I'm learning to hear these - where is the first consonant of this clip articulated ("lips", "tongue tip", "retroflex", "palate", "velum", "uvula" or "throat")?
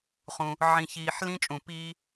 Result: uvula